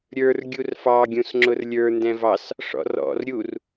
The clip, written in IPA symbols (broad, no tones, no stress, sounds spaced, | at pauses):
ɾʲ ə˞ r ɡʲ u r f ɑ ɡʲ ũ s ŋ͡ǁ ʊ r lʲ ə˞ n d ɛ̃ v ɑ s | ʂ ɔ̰ r ɔ̰ r ɾʲ u r